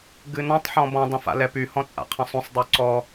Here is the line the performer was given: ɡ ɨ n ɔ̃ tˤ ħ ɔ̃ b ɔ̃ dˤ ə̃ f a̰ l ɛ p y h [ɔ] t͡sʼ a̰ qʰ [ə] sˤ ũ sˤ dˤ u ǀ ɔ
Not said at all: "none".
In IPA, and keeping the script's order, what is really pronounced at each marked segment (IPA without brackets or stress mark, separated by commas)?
ɔ̃, ə̃